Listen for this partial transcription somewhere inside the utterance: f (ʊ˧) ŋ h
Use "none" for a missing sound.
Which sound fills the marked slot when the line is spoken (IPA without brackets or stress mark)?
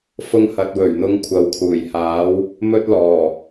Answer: ʊ˧